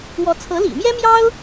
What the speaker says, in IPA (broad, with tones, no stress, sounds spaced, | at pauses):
w ɔ˧˥ t͡sʰ ɤ˧˥ l ḭ˨˩ m j ɛ˥ m j ɑ˥ ʊ̯